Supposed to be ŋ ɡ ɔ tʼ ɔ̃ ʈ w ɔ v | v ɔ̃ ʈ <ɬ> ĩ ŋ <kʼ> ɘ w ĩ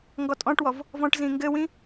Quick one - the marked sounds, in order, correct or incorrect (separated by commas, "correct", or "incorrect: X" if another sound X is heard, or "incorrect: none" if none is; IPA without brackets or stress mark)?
incorrect: z, incorrect: ɡ